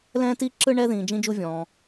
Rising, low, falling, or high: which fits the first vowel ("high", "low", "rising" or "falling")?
high